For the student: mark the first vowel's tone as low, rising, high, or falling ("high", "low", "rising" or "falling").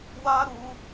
high